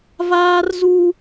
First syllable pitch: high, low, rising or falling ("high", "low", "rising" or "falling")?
high